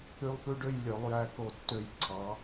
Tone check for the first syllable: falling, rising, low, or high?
high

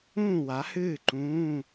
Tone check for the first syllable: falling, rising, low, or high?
falling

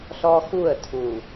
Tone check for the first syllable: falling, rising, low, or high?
high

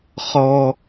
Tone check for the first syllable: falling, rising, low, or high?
high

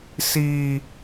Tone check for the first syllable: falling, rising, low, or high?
high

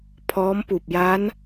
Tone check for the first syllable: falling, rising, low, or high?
rising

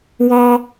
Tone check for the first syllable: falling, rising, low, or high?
high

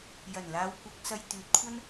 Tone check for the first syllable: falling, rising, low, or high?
low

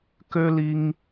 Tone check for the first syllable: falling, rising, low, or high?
high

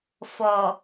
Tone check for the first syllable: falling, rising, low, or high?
low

